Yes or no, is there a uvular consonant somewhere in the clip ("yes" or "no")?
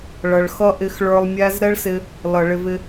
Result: no